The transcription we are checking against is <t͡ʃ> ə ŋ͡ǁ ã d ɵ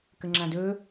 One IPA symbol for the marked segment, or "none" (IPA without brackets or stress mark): k